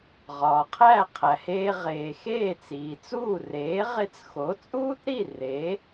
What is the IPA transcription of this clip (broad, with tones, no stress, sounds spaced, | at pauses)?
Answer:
ʁ ɒː˩ qʰ æ˥˩ qʰ æ˩ h eː˧ ʁ eː˩ x eː˥˩ t͡s iː˩ t͡s uː˥˩ r eː˩˥ ʁ e˧ t͡s x o˩˥ t͡sʼ uː˥ t ɾ i˥˩ r e˩˥